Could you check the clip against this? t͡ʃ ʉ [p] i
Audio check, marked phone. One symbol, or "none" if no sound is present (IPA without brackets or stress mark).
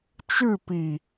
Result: p